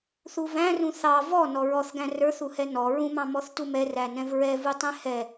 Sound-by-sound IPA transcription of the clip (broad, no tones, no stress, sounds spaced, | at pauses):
θ u v æ̃ r ũ θ ɑ v ɔ n ɔ ɹ ɔ θ ɡ æ̃ r ə˞ θ u h ɛ n ɔ ɹ ũ m ɑ̃ m ɔ θ t u m ɛ r æ n ɛ̃ v ɹ ɛ v u tˤ ɛ̃ h ɛ